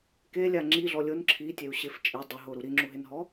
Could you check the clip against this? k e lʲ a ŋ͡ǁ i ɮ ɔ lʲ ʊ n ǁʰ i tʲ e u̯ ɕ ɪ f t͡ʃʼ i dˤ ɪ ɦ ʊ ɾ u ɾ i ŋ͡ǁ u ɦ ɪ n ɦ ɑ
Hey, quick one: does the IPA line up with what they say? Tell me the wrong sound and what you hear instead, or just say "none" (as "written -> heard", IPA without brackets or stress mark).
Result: ɑ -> ɔ